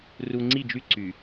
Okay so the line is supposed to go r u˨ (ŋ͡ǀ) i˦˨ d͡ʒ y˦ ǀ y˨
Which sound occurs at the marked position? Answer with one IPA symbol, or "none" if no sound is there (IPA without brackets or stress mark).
ŋ͡ǀ